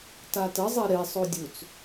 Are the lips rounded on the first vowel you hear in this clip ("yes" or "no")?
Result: no